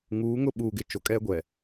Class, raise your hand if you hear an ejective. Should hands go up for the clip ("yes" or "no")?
yes